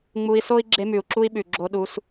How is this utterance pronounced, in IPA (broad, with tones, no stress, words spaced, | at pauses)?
ŋ͡mu˧i̯so˦i̯ ɡ͡ǁe˧mʉ˨u̯ǁu˧i̯ɓʉ˨ ɡ͡ǁo˧ɗu˧s